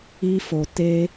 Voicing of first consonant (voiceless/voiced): voiceless